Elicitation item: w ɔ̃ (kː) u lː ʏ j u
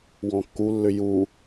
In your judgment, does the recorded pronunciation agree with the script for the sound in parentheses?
yes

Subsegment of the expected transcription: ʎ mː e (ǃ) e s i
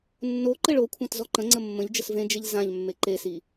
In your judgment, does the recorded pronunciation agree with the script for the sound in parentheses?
yes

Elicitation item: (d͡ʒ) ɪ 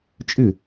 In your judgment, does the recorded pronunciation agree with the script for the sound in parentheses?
no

